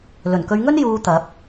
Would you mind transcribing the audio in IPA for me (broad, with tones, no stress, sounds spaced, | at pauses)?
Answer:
l ɵ˨˩ n k ɵ˨˧ ɥ ŋ ɵ˥ n j uː˧ t̪ ɐ˨˥ p̚